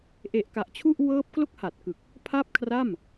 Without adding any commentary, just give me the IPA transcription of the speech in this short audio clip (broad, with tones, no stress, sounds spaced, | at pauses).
ʔ e˨˩ ʔ k a˨˩ ʔ t͡ɕʰ u˥˩ ʔ w ɤː˦˥ p̚ k l o˥˩ k̚ h a˨˩ t̚ k ɯ˨˩ k̚ | pʰ a˥˩ p̚ kʰ r a˥˩ m